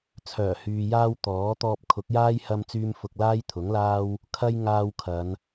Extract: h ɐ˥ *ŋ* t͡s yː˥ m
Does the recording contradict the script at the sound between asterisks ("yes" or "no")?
yes